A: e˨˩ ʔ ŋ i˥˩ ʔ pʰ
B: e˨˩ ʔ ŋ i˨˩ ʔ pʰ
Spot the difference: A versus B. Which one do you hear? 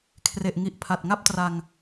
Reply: B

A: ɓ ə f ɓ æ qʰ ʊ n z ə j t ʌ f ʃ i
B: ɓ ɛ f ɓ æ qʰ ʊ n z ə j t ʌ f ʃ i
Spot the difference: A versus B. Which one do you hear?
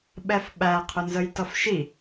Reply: B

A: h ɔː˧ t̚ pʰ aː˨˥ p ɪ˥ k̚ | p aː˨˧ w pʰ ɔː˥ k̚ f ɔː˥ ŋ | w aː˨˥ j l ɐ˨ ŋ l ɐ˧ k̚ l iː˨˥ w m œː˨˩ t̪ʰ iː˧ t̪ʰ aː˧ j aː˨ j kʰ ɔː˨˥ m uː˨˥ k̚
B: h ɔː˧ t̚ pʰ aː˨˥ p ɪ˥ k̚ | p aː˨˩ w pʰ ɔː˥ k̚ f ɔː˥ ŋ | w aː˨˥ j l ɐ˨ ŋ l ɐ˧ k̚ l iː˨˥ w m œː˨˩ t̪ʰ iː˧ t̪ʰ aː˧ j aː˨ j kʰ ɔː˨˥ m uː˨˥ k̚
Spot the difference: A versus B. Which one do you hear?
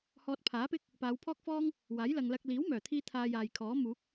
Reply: A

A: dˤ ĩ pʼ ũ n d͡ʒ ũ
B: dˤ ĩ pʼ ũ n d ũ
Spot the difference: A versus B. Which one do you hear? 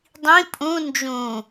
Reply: A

